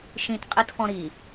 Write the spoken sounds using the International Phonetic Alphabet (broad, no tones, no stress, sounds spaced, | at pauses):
ʃ ĩ t qʼ i t f ɔ̃ ɾ i